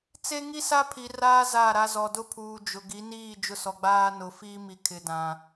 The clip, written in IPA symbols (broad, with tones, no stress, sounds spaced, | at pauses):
t͡s e˦ ŋ i˦ s a˦ pʰ i˨ r aː˦ z a˦˨ ɾ a˦ z ɔ˨ d ʊ˦ pʰ uː˨ d͡ʒ ʊ˨ ɡ i˨˦ n iː˦˨ d͡ʒ ʊ˦ s ɔ˨ ɡ͡b aː˦ n ʊ˨ f iː˦ m i˨ kʰ ɪ˨ d ã˨